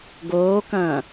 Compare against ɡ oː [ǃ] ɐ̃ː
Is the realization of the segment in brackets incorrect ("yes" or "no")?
yes